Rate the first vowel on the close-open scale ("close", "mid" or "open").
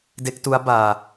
mid